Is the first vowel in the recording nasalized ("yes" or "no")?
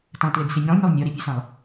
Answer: yes